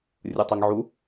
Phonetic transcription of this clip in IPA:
rʲ ɯ tˤ ɛ ŋ ʕ u

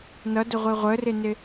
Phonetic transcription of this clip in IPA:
n ʌ d ʊ ʁʷ i ʁʷ ə r ɪ n ɪ

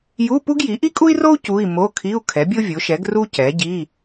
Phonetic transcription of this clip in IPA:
j u˧˥˧ p u˥ ɡ j i˩˥ ʔ i˥ kʼ u˥ i̯ r o˥ u̯ c u˧˥˧ i̯ m o˧˥˧ kʰ i˧˥˧ u̯ kʰ ɛ˩˥ bʲ o˥ vʲ o˩˥ ʃ ɛ˩˥ ɡ r u˥ c ɛ˩˥ ɟ i˧˥˧

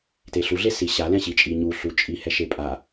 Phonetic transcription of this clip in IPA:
t e ɬ u ɮ e s i ɕ a l ɛ̃ ɕ i t͡ʃʼ i ɲ u ɬ u t͡ʃʼ i h ɛ ʃ e pʼ a

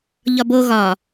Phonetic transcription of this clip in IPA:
ʎ ɒ b o ɣ ɒ

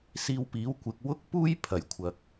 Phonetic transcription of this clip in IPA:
s iː˧ w p iː˨˥ w kʷ ɪ˨ k̚ w ʊ˥ k̚ p uː˥ j pʰ ɐ˨˩ j kʷʰ ɐ˨ k̚

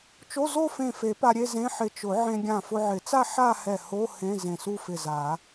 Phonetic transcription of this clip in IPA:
t͡ʃ o˧˥˧ z o˥˧ f ẽ˧˩ f e˨˩˦ p a˧ ɾʲ e˥˧ z ẽ˧˥˧ ħ ɪ˧˩ t͡ʃ ʊ˨˩˦ ʕ ẽ˧ ɡʲ ã˧˩ f ʊ˧ ʕ ɪ˨˩˦ t͡s a˥˧ ħ a˥˧ h ɛ˧˩ h o˧˥˧ h ẽ˧˥˧ z ẽ˧˩ s u˥˧ f ɪ˧˩ z a˨˩˦

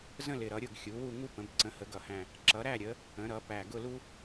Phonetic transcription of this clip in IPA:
z ə̃˦˨ l ɪ˨˩ ɾ ʌ˩˧ ɾʲ ʊ˦˨ ɡ xʲ u˩˧ w u˦˨ ŋ u˦ p ə̃˩˧ b ǀ ə̃˩˧ h ə˩˧ ɡ ʌ˨˩ h æ̃˨˩ | ǁ ʌ˩˧ ɾ æ˦˨ ɾʲ ə˩˧ | ə̃˩˧ ɾ ʌ˩˧ p æ˨˩ ɡ ʊ˦˨ l u˦

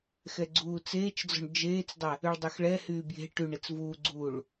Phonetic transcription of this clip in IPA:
x ɛ ɡ͡ǀ uː t͡s eː t͡ʃ d͡z ɔ̤ ɳ d͡ʒ eː t͡s dˤ ɛ | y ɭ dˤ ʏ x ɭ ɛ h yː b j e̤ ʈ y ɳ e t͡s v uː ɡ͡ǀ uː ɭ

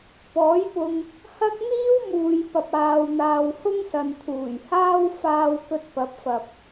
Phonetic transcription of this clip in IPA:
p ɔː˨˥ j p ʊ˧ ŋ | h ɐ˥ k̚ n̪ iː˥ w m uː˨ j p ɐ˨ p̚ aː˨ w n̪ aː˨ w h ʊ˥ ŋ s ɐ˨ n t̪ʰ uː˨˩ j h aː˥ w f aː˧ w k ɵ˧ t̚ p ɐ˨˥ p̚ f ɐ˨ p̚

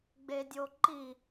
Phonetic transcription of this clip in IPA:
ɡ͡b e dʲ o ǃ i

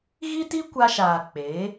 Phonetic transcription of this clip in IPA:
ɣ i˦ t i˦ kʷ a˧ ʃ aː˨ k͡p eː˨˦

